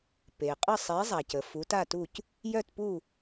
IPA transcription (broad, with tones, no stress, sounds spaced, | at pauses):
p e˩ qʼ ə˥˨ sˤ e˨˦ zˤ a˩ c ə˩ f u˨˦ t a˥˨ t u˥˨ c | j œ˥˨ t p u˥˨